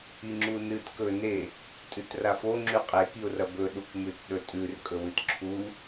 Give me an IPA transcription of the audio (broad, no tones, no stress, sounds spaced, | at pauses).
i ŋ͡ǁ u n ɨ t k ɵ n e | tʼ ʉ t r a f o ŋ͡ǁ ʉ qʼ e k i ʊ̯ r ɐ b ɵ ɗ u k m ʉ t ɗ ɵ tʼ ʉ r kʼ ɵ w ɨ t ǁʰ u